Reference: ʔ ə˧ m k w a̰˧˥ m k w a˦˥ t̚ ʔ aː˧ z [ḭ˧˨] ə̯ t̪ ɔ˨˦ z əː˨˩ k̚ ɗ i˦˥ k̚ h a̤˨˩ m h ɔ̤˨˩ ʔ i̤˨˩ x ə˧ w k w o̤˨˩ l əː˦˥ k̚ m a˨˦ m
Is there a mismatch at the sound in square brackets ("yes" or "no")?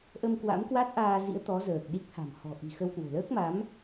yes